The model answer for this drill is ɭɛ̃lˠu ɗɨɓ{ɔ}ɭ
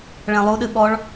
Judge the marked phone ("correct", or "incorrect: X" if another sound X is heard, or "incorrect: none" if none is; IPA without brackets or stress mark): correct